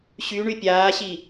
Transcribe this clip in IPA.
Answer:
ɕ y ɳ y pʲ aː ɕ i

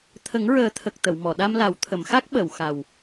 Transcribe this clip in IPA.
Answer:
t̪ʰ ə˨˩˦ ŋ ɹ əː˨˩˦ t̪ʰ ə˨˩ k̚ t̪ ə˨˩˨ w m ɔ˨˩˨ ɗ a˧ m l a˨˩˦ w t̪ʰ ə˨˩˨ m x a˦˥ k̚ ɓ ə˨˩˨ w x a˨˩ w

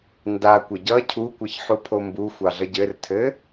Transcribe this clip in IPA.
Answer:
n d a kʷ ə ɟ ʌ cʰ u kʷ ʌ ç ħ u pʰ o m b u xʷ ɑ ɮ ʌ ɟ ɘ r tʰ ɘ

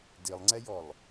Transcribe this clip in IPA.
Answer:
d i lˠ ŋ͡ǀ ɛ j ɔ lˠ

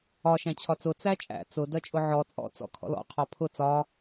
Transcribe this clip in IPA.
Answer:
ɒ ʃ æ̃ t͡ɕʰ ɒ t͡s ʊ t͡s æ t͡ʃʼ æ̰ t͡s ʊ d ɜ t͡ʃʼ ʊ ʕ ɔ t͡sʼ ɔ̰ t͡s ɔ̰ kʰ ɔ̰ l ɔ̰ qʰ ɒ pʰ ʊ t͡s ɒ

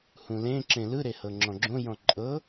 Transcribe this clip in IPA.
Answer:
h ũ l ẽ ǁ ẽ l ɯ ɾ e h ɤ ŋ͡ǁ ɔ̃ ɡ͡ǁ õ j ɔ̃ ǃʼ ɤ

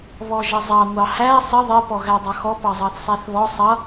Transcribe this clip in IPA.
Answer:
β ɔ ʒ ə zˤ ɑ ŋʷ ɑ h æ sˤ ə ðˤ ɪ p ɔ ɣ æ dˤ ʌ x ɔ p ɑ zˤ ɑ θ sˤ æ θ β ɔ sˤ ʌ

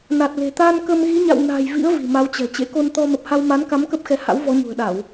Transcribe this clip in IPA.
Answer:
n a˨˩ t̚ l e̤˨˩ t̪ a˧ n k ə˧ m ɣ i˨˦ ɲ a̰˧˨ w n a̤˨˩ j v ḭ˧˥ ə̯ v i̤˨˩ m a˨˦ w t͡ɕ ɛ̤˨˩ t͡ɕ ḛ˧˥ k o˧ n t̪ ɔ˧ m ə˨˩ p̚ h a˧ w m a˨˦ n k a˨˦ m k ə˦˥ p̚ x ɛ˨˦ h a̰˧˥ w v ɔ˨˦ ɲ ṳ˨˩ ə̯ ɗ a˧˩˨ w

